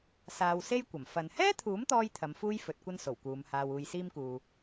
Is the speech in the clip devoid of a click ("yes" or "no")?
yes